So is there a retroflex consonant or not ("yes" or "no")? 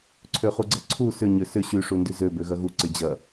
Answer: yes